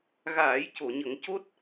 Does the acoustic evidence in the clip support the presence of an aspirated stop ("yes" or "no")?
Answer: no